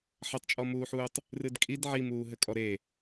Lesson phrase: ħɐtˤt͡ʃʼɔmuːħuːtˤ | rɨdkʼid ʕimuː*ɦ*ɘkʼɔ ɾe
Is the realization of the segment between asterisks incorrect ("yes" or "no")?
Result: no